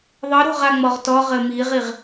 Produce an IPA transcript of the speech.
ðˤ ɨ ɾ o̤ ʁ a ŋ͡m ɔ ʁ t ɔ ʁ ɘ m i ʁ i ʁ

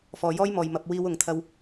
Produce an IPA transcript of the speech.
f ɔː˨ j ɔː˥ j m ɔː˨ j m ɐ˧ p̚ w iː˧ w ʊ˨ ŋ t̪ʰ ɐ˧ w

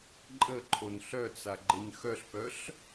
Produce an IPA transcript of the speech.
ǃʼ ə ǃʰ o n ɬ œ t͡s a ɡ͡ǃ ɪ ɲ x œ ɬ p œ ɬ

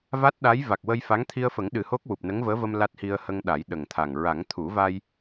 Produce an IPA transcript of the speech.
v a˦˥ t̚ ɗ a˧˥ j v a˨˩ k̚ w ə˧ j f a˧˥ ŋ t̪ʰ i˧ ə̯ f ə˨˩˦ ŋ ɗ ɨ˨˩ h o˦˥ k̚ w u˨˩ p̚ n ə˧˥ ŋ v əː˧˥ v ə˧ m l a˦˥ t̚ h i˧ ə̯ h ə˧ ŋ ɗ a˨˩˦ j ɗ ə˨˩ ŋ t̪ʰ a˨˩ ŋ ɹ a˨˩˦ ŋ t̪ʰ u˨˩˦ v a˧ j

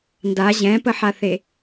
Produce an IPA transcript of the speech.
n d a ʑ ɛ̃ p ə ħ a θ e

